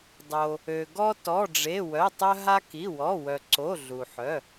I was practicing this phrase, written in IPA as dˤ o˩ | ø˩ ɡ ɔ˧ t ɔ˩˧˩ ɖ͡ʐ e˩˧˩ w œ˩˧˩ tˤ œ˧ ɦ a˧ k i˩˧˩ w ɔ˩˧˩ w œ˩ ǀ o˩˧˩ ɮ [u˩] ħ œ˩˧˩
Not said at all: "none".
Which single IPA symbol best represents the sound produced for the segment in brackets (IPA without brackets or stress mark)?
u˩